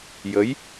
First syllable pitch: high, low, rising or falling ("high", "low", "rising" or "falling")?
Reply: rising